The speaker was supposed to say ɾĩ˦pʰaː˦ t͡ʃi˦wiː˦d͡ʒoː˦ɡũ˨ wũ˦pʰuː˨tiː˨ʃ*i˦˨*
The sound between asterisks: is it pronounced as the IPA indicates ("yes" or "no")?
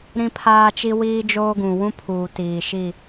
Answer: yes